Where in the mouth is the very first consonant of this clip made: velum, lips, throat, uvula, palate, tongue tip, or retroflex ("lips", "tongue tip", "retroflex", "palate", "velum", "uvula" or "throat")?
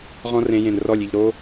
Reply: uvula